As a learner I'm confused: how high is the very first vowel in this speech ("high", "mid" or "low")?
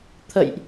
mid